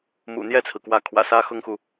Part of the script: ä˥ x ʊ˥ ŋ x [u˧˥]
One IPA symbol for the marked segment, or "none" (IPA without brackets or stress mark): u˨